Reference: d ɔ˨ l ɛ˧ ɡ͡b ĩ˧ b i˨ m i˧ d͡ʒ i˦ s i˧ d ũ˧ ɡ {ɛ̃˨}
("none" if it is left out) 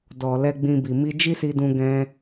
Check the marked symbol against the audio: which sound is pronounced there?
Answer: ɛ̃˧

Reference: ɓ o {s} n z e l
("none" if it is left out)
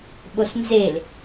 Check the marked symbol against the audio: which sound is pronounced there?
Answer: s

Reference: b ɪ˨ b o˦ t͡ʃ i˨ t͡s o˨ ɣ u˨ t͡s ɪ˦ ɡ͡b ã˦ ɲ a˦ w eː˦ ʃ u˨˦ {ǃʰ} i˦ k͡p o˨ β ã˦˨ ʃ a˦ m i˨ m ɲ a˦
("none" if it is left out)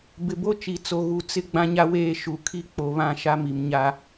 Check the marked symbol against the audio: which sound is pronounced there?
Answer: kʰ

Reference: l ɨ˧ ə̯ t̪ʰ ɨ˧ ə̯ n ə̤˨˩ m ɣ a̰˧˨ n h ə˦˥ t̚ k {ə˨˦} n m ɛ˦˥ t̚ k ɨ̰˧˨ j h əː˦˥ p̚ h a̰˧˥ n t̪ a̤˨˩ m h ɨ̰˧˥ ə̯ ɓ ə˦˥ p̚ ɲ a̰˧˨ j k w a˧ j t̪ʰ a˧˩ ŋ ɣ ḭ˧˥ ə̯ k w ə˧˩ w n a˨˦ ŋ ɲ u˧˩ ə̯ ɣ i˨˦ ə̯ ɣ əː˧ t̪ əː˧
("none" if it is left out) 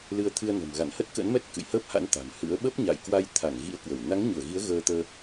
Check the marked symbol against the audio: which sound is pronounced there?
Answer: ə̰˧˥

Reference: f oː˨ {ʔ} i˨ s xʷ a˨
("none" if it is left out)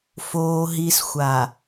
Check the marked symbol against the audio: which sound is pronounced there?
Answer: ɦ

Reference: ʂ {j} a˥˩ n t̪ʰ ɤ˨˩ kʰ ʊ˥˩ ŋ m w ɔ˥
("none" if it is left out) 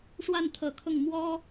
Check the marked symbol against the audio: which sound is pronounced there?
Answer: w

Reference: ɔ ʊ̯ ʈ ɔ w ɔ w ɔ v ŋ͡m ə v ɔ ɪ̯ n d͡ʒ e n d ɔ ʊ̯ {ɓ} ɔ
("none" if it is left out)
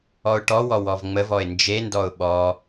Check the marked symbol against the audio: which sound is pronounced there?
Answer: ɓ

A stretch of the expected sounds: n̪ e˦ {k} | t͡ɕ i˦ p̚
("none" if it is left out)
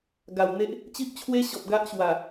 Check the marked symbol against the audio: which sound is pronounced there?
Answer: ʔ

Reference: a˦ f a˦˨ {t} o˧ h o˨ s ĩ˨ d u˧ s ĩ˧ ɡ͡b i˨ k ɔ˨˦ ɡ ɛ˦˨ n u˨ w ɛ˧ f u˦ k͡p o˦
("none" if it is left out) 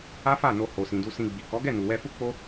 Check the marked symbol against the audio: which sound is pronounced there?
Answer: n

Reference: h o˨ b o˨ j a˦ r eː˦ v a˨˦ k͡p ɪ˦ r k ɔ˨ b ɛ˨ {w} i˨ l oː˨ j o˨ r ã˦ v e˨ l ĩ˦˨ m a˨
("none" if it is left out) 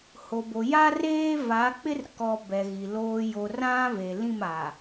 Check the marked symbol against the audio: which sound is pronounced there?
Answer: ɣ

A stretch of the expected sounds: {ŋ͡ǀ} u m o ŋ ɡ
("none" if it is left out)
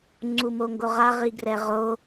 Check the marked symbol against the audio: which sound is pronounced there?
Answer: ŋ͡ǀ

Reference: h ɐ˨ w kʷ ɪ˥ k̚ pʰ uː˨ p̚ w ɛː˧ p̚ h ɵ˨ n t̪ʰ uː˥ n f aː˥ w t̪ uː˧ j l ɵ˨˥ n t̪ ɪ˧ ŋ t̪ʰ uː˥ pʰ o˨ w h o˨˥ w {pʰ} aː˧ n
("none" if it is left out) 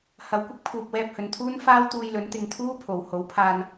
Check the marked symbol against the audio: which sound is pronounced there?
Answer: pʰ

